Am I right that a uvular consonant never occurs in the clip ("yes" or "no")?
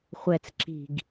no